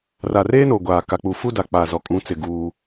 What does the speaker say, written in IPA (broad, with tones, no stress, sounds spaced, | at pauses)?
r a˨ r eː˦ n o˨ ɡʷ aː˨ k a˨ k͡p u˨ f u˦ d a˨ k͡p a˨ z ɔ˨ kʼ ũ˨˦ t͡s ɪ˨ ɡ uː˦